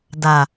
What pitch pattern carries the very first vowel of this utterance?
low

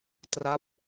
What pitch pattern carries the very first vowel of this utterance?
falling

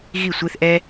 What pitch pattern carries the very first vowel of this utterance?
falling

